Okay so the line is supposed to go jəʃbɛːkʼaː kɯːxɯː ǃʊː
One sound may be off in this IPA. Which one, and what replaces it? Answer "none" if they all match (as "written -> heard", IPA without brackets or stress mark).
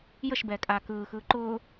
none